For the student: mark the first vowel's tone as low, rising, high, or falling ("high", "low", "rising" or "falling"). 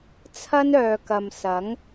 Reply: high